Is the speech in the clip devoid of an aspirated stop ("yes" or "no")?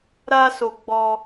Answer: yes